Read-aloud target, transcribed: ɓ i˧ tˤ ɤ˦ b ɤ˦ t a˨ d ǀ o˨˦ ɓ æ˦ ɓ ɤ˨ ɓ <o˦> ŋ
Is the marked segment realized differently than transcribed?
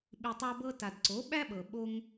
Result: no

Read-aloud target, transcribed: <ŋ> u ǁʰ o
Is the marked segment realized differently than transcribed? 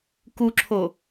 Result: yes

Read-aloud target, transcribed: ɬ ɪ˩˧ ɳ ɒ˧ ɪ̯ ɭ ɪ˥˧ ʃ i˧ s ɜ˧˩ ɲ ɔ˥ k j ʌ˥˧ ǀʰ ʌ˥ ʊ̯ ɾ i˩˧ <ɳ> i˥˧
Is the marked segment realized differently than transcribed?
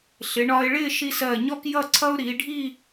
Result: yes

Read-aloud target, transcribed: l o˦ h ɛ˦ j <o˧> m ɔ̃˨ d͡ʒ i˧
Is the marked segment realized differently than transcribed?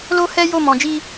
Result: yes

